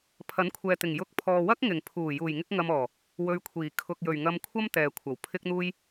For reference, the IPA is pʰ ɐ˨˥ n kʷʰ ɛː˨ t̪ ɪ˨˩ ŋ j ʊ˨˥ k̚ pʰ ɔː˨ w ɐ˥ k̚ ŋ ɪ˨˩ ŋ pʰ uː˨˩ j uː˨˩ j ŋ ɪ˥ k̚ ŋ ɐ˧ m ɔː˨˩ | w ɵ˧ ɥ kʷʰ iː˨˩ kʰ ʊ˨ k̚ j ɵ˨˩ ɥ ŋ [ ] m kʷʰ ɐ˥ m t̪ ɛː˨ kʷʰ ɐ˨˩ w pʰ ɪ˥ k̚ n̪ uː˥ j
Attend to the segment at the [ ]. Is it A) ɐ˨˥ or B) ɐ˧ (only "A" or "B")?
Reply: B